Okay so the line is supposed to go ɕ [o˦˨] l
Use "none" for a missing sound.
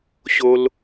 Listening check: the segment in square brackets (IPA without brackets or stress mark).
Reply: o˦